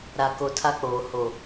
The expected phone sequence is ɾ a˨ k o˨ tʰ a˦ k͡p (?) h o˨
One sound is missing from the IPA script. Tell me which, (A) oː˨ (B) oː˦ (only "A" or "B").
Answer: A